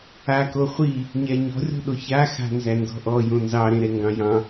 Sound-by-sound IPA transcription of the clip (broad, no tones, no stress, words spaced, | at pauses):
ako χʷi | ɲɛɲɔ̤rʲɔ̤ɗo ça xa̤nzændɔ̤ʔɔ jõnzɑɾẽɾɛ ŋɡɑ̃jɑ̃